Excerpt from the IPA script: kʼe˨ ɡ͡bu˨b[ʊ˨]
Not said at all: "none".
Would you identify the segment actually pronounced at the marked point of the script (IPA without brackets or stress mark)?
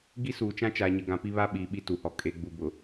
ʊ˨